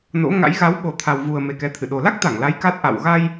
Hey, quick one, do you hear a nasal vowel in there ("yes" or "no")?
no